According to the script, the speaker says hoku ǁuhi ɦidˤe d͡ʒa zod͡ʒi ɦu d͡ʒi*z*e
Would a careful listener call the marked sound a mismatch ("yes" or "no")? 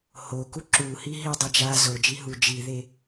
yes